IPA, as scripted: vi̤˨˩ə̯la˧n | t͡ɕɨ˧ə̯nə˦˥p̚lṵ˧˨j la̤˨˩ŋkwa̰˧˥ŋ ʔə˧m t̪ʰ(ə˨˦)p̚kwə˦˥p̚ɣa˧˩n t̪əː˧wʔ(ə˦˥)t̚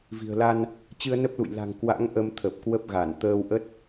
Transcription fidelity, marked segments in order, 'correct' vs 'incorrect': incorrect: ə˨˩, correct

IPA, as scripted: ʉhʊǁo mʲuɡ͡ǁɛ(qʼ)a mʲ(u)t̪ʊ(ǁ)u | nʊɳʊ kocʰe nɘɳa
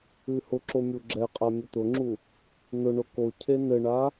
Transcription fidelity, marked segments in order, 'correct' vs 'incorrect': correct, incorrect: ʊ, incorrect: ŋ͡ǁ

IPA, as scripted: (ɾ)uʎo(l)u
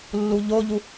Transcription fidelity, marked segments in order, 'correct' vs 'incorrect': incorrect: lː, incorrect: ʎ

